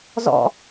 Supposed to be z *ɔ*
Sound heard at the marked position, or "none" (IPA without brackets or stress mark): ɔ̰